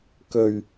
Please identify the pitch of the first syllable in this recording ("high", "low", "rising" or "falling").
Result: low